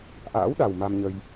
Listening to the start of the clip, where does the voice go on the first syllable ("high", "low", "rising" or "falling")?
rising